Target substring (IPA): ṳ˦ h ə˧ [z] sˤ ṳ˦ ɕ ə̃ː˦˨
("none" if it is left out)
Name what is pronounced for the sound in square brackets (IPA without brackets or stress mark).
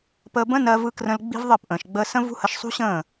ʃ